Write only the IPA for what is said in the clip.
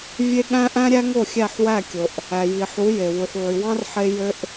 vʲ e˦ ɠ æ̃˦ ʔ æ̃˦ ɾʲ æ˦ ŋ o˦˨ xʲ æ˦˨ ħ w æ˦˨ kʲ o˨ ʔ | æ˨ j i˨ ħ u˨˦ j e˨ w u˨ ħ ʕ y˨ w ɑ̃˦ r ħ e˦ j ø˦ ʔ

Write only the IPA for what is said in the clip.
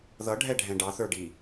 ð ʌ ɖʱ ɛ ɖʱ ɛ̃ ɖ ɑ θ ə˞ ɖ i

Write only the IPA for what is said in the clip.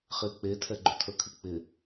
χ ɪː k͡p e tʰ ɛ ɡ͡ǃ ʏ tʰ əː kʰ ɨ k͡p ɪ

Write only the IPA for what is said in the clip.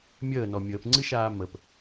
mʲ əː n ɔ mʲ əː p ŋ͡ǀ ɨ ʃ aː m ə p

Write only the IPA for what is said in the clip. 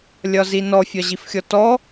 lʲ ɒ z i n ɔ fʲ ɒ ʑ i f xʲ ɔ t ɔ

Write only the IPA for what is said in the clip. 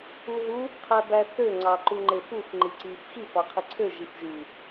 u ɦ u | qʰ æ b æ θ ø ŋ͡ǀ ɑ ǃ u ŋ͡ǃ e f u f ŋ͡ǃ i ǀ i f x i f ɑ qʰ i ǀʰ ø ʒ i f ʒ y

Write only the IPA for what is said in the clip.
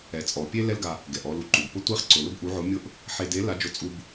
ɛ˩˧ t͡sʼ ɔ˩ pʲ e˥ l ɛ˥ l ɡ a˧ | ɡ ɛ˩ ʔ ɔ˧ l u˧ ǃ u˩ b p ʊ˧˥ tʷ e˧˥ χ ǀ ʊ˩ l ʊ˥ b ʔ u˧˥ ʕ ʊ˧˥ mʲ ʊ˥ ʔ | ħ e˧ d e˧˥ l a˧˥ d͡ʒ ʊ˧ t͡sʼ u˧ b

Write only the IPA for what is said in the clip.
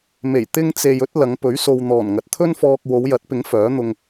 m e˨˩ j t̪ ɪ˥ ŋ t͡s e˧ j ɵ˥ t̚ l ɐ˨˧ ŋ p ɵ˨˥ ɥ s o˧ w n̪ ɔː˨˩ n ŋ ɐ˨ t̚ t̪ʰ ɵ˥ n f ɔː˧ k̚ w o˨˧ w j ɐ˨˥ t̚ p ɪ˨˥ ŋ f œː˨˥ n̪ ʊ˧ ŋ

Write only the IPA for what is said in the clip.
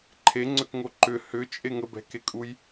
ǃʰ e ŋ͡ǀ ʏ k ŋ o ǃ ʏ h ʏ t͡ʃʼ e ŋ ə b ɛ̤ k e kʼ u j

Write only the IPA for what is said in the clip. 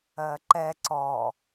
ɜ ǃ ɛ ǀ ɔ

